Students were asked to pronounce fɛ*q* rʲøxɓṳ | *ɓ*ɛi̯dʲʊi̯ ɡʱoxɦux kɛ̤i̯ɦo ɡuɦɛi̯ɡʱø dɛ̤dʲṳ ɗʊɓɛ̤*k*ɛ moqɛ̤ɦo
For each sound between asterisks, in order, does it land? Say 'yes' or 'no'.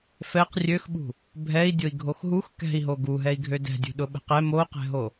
yes, no, no

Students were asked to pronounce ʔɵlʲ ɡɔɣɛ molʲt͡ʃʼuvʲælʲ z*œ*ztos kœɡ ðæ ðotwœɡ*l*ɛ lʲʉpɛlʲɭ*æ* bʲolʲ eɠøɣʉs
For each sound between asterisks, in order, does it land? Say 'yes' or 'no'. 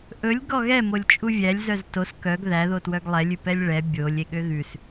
yes, no, no

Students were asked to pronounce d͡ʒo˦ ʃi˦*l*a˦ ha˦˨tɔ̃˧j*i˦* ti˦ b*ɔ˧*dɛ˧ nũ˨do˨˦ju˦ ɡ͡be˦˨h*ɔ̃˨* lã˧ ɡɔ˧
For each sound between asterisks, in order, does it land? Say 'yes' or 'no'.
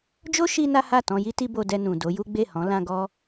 no, yes, no, no

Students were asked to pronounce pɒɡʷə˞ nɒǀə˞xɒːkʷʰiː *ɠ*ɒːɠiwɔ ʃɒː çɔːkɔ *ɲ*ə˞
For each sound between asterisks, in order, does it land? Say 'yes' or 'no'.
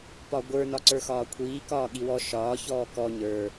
no, yes

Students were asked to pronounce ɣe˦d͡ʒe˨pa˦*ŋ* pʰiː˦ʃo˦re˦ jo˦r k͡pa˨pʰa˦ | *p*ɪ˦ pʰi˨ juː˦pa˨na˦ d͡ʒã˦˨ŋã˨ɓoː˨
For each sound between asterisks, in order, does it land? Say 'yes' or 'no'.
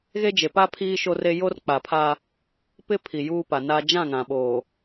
no, yes

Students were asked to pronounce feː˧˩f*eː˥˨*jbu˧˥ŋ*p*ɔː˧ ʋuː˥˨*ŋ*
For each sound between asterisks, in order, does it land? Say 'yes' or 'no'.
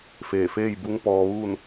yes, yes, no

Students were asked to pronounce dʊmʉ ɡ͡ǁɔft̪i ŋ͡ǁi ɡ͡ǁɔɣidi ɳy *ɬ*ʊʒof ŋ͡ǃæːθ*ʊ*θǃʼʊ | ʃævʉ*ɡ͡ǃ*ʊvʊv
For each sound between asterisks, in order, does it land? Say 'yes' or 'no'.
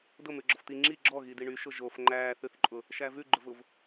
no, no, yes

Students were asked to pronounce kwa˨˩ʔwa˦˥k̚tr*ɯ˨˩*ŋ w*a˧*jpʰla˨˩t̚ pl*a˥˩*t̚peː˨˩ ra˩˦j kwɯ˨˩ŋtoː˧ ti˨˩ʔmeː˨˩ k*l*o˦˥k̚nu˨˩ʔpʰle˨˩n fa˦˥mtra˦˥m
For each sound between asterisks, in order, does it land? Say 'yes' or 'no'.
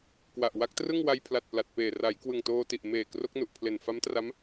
no, yes, no, no

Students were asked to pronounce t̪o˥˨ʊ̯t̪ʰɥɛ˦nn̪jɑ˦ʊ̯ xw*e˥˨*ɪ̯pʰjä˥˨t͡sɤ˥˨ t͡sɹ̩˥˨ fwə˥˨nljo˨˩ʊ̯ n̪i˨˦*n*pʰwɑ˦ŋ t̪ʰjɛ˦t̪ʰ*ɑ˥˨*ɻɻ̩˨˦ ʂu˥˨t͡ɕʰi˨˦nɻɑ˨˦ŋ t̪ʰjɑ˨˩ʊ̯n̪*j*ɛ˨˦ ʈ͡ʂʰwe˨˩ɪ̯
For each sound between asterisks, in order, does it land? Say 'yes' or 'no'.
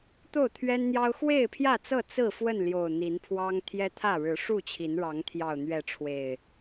yes, yes, no, no

